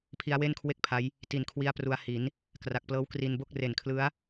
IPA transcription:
pʰ i˦˥ a̯ w e˥˩ n kʰ w e˥˩ k̚ pʰ a˦˥ j | t i˨˩ n kʰ w i˧ a̯ p r u˧ a̯ h i˩˦ n | k r a˨˩ k̚ p l ɤː˦˥ w k r i˧ n b o˥˩ k̚ r e˨˩ n kʰ l ɯ˦˥ a̯

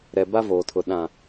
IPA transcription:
ɾ ɛ˨ b a˦ v oː˨ tʰ ʊ˨ ɗ ã˨

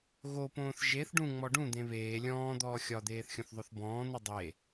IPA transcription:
ɣ o p õː θ ʒ e θ ɖ ũ ŋ͡m ɔ ɖ ũ d̪ ẽ β eː lʲ ɔ̃ː d̪ ɔː xʲ ɒ d̪ eː θ xʲ õ θ ðˤ o θ b ɔ̃ː n̪ u dˤ e

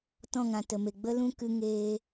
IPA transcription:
t ɔ̃˦˨ ŋ ã˨ t ə˨ m e˨ ɡ͡b ə˦ l ũ˦ k ɨ˧ ŋ eː˧

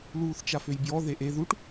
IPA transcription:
l uː θ t͡ʃ a f ø j b j ɔ ð e ʔ e ð u ʈ

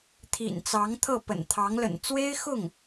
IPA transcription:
t̪ʰ ḭ˨˩ n t͡s ɑ˧˥ ŋ t̪ʰ ɤ˥˩ p ə̰˨˩ n t̪ʰ ɑ˧˥ ŋ l ə̰˨˩ n t͡s w e˥ ɪ̯ x ʊ˥˩ ŋ

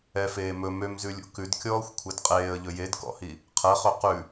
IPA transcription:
ɛ f eː m ɵ m ø m z ʉ lʲ ṵ k ʉ d kʲ ɔː xʷ kʷʰ ɛ d qʼ eː ə̯ ʎ ɵ j e d k ɔ̰ h i | qʰ ɛ χ ø q ʉ

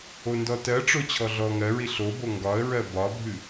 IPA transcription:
o n d ɔ t ɜ ʈ͡ʂ o t͡ɕʰ ɔ ɮ ɔ ŋ ɜ ɹ i ɬ o b o ŋ ɡ ɒ ə̯ ɹ ɜ b ɒ bʱ ɨ

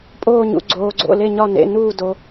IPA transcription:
pʼ oː˧˩ ɲ ṵ˩ ɡ͡ǀ oː˩ ɡ͡ǀ o̰˩˧˩ l e˧˩ ɲ ɒ˧˩ n ḛ˩˧˩ n uː˧˩ d o˩

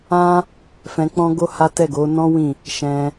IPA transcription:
ã˦ | f ɛ̃˧ k͡p ɔ̃˦ ɡ o˦ h a˦ t ɛ˦˨ ɡ o˨˦ n ɔ̃˦ w ĩ˦˨ | ʃ ɛ̃˧

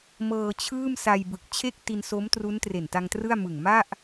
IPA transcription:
m ɤː˧ t͡ɕʰ ɯː˥˩ m s a˧ j b ɯ˨˩ k̚ t͡ɕʰ e˥˩ k̚ t i˧ n s o˦˥ m t r u˦˥ n t r e˨˩ n t a˧ ŋ t r ɯ˥˩ a̯ m ɯ˨˩ ŋ m a˥˩ ʔ

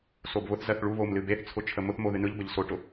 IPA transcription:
s o b β ʊ θ z ɜ θ ɭ u β o m l ɨ b e θ t͡sʰ ʊ t͡ʃʰ ə m ʊ θ m o ð ɨ n ɯ ʎ b ə ʎ s o ʈ ʊ

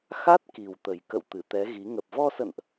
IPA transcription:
x a˦˥ t̚ k i˨˩ w t̪ ə˨˩ j k ə̰˧˨ w t̪ ɨ˧˩ t̪ ɛ˨˦ ɣ i˨˦ ŋ ə˨˩ p̚ v ɔ˧ s ə̰˧˨ n ʔ

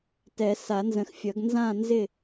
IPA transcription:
t ɛ˨˩˦ s a˨˩˦ n z ə̃˨ x fʲ ʌ˨˩˦ ɡ n z ã˥˨ n z ɪ˥˨

